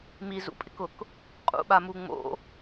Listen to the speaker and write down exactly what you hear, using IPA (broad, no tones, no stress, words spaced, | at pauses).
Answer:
mizṵpʼɪkʊk | qʼṵɓamu ŋ͡mo̰